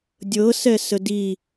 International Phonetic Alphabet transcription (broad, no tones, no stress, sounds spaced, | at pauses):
dʲ ɤ s ɛ s ə d i